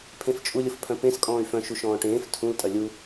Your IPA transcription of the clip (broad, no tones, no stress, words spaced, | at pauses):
pʰẽft͡ʃʼulʲʊf pʰœ̃pẽskʼɔ̃ːy̯ fœ̃ʃu ʃɔ̃ːʈẽːf tʰũl tʼɐlʲu